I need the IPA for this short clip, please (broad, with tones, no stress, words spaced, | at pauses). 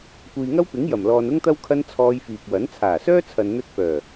kʷiː˨ŋɐ˥wpɪ˨˥ŋ jɐ˨˩mlɔː˨n ʊ˥ŋt̪ɐ˥w kʰɐ˥n t͡sʰɔː˧jfiː˨k̚wɐ˨˥n t͡sʰaː˨˩sœː˥t͡sʰɐ˨n n̪ɵ˧t̚fœː˨˩